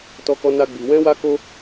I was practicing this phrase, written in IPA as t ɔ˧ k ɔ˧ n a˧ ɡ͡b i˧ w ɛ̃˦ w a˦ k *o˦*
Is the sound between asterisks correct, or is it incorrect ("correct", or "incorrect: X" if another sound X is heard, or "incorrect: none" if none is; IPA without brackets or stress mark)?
correct